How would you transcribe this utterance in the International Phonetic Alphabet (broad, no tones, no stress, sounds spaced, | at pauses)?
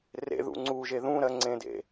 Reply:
r ḛ ð ṵ ŋ͡ǀ u ʒ e ð ũ ɾ ɜ ŋ͡ǀ ẽ d ḛ